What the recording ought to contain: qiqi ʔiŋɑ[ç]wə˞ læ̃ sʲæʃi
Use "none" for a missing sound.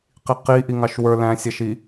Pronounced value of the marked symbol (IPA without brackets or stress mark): ʃ